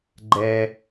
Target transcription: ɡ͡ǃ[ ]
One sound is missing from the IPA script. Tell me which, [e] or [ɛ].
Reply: ɛ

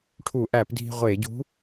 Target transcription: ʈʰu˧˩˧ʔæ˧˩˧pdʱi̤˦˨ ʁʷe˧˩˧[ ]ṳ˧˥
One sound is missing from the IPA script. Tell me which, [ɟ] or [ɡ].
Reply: ɟ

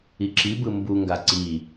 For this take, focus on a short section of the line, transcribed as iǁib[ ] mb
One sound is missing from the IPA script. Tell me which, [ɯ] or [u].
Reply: ɯ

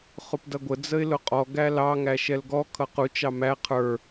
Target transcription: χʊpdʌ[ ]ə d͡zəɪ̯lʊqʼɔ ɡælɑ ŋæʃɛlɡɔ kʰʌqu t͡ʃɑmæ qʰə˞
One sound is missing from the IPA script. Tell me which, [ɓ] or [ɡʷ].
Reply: ɡʷ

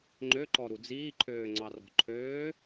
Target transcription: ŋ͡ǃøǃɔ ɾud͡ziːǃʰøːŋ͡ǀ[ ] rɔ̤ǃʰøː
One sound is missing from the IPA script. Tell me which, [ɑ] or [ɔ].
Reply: ɑ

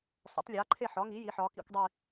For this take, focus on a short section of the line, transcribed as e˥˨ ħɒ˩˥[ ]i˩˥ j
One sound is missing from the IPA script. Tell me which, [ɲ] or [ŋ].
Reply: ŋ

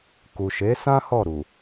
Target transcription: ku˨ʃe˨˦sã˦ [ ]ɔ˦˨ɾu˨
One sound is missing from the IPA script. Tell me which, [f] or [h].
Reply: h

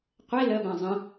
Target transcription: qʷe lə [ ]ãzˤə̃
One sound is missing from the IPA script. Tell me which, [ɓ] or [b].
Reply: b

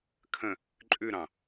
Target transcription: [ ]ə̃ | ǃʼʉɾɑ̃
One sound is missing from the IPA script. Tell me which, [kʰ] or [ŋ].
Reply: kʰ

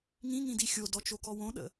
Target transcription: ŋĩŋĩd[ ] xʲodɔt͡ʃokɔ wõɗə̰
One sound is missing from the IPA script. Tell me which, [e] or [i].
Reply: i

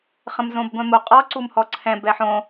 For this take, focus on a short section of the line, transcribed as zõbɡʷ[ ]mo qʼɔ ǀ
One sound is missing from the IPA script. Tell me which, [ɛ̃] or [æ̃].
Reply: ɛ̃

